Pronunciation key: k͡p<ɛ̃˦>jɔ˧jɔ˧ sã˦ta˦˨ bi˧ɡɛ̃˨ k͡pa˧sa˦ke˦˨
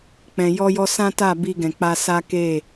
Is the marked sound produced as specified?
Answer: no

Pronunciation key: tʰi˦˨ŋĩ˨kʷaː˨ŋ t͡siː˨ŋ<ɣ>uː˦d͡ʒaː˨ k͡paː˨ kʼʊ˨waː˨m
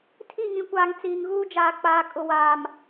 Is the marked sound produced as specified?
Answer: yes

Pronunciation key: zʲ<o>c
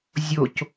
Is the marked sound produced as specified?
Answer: yes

